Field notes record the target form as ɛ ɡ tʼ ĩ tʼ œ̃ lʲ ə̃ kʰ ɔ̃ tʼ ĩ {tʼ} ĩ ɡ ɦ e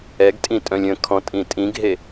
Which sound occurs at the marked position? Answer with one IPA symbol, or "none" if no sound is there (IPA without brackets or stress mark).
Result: tʼ